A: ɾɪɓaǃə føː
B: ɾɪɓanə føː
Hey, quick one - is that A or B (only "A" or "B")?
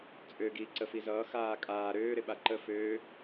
A